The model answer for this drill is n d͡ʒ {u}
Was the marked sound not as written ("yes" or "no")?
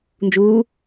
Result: yes